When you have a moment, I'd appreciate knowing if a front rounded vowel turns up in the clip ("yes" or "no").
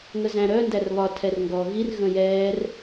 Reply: yes